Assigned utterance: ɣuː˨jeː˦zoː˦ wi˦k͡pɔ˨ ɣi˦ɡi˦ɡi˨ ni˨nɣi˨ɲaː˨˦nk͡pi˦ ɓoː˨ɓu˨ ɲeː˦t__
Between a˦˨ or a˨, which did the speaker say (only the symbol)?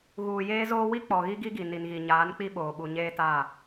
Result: a˦˨